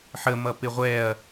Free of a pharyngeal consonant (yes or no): no